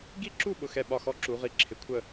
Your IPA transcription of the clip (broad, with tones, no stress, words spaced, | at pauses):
ɡi˥˨ǁu˥˨ ɓʊ˥˨xɛ˥˨ɓɒ˥˨ xɔ˥˨ǁu˨˦ʁi˨˦ ǁʰɪ˨˦kʷʰə˥˨